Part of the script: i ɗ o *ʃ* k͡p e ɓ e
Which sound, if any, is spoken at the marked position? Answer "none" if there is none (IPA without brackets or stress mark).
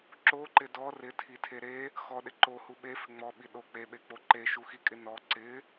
none